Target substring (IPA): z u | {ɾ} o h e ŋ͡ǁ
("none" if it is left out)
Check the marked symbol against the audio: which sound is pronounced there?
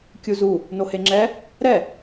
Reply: n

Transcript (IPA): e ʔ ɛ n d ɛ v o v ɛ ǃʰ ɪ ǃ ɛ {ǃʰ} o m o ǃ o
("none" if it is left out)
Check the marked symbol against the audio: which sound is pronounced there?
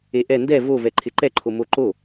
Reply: ǃʰ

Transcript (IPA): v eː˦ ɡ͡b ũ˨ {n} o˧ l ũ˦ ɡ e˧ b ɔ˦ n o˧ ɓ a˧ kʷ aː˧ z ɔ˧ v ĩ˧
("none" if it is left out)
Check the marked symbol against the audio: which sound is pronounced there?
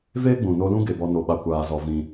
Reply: n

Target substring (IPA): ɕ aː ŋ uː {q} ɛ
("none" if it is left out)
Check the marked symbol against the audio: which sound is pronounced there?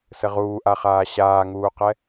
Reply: q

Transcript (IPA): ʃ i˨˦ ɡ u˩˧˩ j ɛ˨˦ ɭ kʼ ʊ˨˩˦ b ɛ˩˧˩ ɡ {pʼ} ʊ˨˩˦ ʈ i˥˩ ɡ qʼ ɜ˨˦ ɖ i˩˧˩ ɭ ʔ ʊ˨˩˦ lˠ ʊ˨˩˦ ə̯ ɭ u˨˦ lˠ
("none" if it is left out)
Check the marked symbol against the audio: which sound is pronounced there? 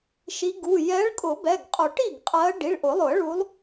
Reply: qʼ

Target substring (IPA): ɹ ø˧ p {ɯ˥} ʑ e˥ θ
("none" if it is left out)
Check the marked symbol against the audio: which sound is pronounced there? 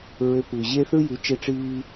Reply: ɯ˩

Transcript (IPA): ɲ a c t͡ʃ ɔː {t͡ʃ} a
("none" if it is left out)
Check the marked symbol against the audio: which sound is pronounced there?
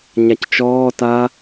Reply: t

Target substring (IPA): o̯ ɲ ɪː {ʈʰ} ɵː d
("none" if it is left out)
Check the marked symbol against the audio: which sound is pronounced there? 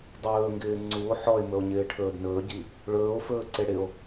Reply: ʈʰ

